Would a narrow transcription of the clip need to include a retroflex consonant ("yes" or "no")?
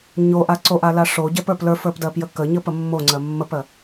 yes